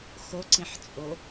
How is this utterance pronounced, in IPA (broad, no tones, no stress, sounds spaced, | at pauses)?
x o ǀ ĩ ħ t͡sʼ o